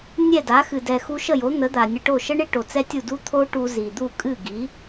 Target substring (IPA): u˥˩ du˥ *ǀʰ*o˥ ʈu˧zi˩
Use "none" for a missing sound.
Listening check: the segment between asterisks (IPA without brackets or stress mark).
t̪ʰ